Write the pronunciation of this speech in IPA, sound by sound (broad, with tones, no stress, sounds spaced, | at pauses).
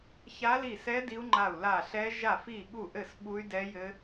ç a˦˥ l i˦˨ s ɛ˦˥ d i˦˥ u̯ ŋ͡ǃ a˦˨ u̯ l a˦˨ ɬ ɛ˦˥ ʒ a˦˨ f i˦˨ ɠ u˦˨ ʔ ɘ˦˨ s ɓ u˦˥ y̯ d ɛ˦˥ j ɘ˦˥